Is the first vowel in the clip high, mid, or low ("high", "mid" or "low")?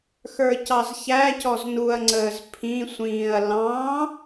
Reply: mid